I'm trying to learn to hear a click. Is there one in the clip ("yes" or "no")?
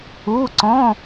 yes